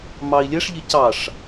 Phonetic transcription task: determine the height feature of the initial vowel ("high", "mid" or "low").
low